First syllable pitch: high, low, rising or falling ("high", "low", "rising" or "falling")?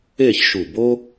falling